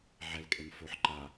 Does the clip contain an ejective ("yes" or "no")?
yes